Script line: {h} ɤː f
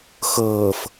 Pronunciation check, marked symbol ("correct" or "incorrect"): incorrect